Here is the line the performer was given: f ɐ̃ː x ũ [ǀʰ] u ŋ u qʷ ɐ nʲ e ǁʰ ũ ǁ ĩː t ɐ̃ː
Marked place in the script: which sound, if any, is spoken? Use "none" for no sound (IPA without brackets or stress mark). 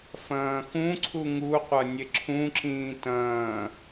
ǀʰ